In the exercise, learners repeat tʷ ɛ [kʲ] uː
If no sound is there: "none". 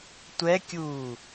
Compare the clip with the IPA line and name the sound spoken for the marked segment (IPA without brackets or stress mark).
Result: kʲ